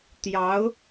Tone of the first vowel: rising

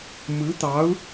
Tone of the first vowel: rising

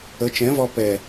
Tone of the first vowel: rising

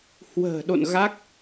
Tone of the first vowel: low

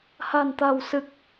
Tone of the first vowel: low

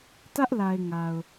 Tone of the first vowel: high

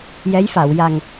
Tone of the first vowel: rising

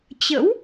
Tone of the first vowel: rising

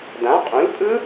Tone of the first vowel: rising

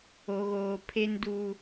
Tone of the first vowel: low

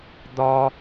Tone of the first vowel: high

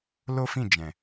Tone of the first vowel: high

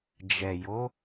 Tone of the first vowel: low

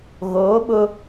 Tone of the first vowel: rising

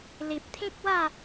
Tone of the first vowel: low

